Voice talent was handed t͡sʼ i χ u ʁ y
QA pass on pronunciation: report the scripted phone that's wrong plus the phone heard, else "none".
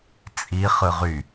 u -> ɯ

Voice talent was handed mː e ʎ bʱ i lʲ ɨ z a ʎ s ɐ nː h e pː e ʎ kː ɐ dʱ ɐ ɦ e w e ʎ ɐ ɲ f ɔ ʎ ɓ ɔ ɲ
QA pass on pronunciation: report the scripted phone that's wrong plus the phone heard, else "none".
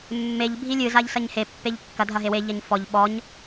nː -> ɲ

